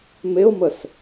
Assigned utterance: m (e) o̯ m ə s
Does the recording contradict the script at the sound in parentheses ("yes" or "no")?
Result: no